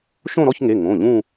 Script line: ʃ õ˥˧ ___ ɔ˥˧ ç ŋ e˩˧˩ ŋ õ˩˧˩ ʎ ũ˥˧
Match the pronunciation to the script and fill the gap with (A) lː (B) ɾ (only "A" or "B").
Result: B